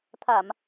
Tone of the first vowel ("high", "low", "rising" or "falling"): low